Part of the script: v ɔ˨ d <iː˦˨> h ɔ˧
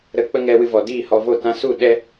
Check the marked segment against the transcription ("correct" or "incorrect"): correct